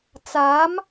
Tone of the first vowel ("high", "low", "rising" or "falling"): rising